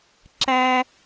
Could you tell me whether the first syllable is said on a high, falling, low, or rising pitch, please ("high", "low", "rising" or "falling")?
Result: high